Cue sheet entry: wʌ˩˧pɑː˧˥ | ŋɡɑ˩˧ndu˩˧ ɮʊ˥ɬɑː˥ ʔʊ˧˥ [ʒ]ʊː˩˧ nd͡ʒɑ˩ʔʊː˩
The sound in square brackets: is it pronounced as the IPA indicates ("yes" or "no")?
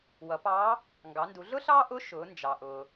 no